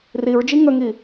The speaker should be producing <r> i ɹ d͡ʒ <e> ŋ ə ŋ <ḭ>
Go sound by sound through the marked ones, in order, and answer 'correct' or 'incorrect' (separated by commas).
correct, incorrect, incorrect